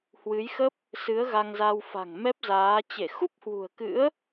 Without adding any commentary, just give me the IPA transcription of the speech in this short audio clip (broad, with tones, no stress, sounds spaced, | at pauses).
h w ɨ˨˦ j x ə˦˥ p̚ | s ɨ˨˦ ə̯ ɣ a˧ ŋ z a˧ w f a̤˨˩ ŋ m ɛ˦˥ p̚ z aː˨˦ t͡ɕ e˧˩ x u˦˥ p̚ h w ṳ˨˩ ə̯ k ɨ̰˧˥ ə̯